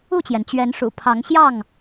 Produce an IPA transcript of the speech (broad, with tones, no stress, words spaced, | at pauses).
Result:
u˥˨t͡ɕjɛ˩n t͡ɕɥɛ˨˦nʂṵ˨˩ pʰɑ˨˦ŋɕjɑ˥˨ŋ